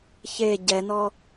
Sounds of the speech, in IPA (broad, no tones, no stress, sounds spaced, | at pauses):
ç e ɟ ɛ n ɔ